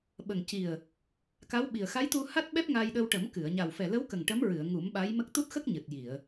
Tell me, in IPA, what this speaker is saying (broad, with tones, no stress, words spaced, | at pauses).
ɓə˨˩ŋci˨˩ə̯ | ka˧˥wɓi˨˩ə̯ xa˧˥jt̪u˧ ha˦˥t̚ɓɛ˦˥p̚ ŋa˧jɗə˧w ʈə˨˩˦mkɨ˨˩˨ə̯ ɲa˨˩wfɛ˨˩lə˧˥wkə˨˩ŋ ʈə˧˥mɹɨ˨˩˨ə̯ ŋu˨˩˦mɓa˧˥j mə˦˥k̚ t̪u˦˥t̚xə˦˥k̚ ɲɨ˨˩t̚ji˨˩˨ə̯